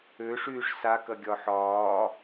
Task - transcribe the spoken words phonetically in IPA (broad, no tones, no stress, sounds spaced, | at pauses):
ø ʂ yː ʂ s a k ɐ ɡʲ ɒ ħ ɒː